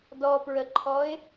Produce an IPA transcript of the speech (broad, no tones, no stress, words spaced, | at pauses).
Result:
dɔpɹəǃʰɔɪ̯